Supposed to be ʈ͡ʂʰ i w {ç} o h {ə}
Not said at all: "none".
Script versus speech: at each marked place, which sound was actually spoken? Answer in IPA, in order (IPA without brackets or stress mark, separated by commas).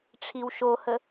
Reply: ʃ, ə